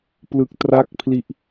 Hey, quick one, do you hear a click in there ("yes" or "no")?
no